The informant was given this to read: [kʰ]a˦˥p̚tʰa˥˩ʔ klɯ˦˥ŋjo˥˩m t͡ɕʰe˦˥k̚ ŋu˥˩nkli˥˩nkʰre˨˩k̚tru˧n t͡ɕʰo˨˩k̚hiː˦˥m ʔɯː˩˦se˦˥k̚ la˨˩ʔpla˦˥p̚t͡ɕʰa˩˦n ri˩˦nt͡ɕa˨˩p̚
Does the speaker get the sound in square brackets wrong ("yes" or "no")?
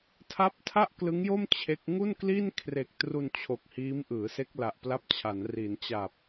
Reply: yes